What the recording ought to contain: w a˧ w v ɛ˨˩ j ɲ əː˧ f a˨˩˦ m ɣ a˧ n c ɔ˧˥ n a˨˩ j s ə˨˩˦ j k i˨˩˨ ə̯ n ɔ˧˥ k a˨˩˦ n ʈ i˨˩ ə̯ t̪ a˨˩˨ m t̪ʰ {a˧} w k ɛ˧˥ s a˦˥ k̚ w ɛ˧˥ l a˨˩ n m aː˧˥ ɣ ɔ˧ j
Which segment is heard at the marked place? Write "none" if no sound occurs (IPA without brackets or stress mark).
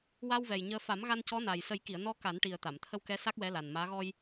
ə˧